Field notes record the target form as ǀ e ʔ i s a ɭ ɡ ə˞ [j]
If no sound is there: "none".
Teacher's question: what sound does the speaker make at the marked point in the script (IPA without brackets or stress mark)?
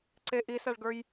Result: j